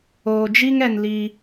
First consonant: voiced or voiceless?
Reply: voiced